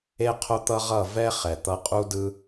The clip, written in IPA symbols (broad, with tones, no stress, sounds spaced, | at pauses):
e˦ qʰ o˦ t̪ ʌ˦ ʁ ʌ˦˨ v ɛ˦ χ ɛ˨ t̪ ʌ˧ qʼ u˦ d ɯ˦